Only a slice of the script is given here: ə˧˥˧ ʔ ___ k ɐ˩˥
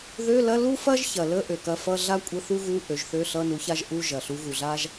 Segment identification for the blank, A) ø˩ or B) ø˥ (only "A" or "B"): A